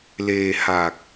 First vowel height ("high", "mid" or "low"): mid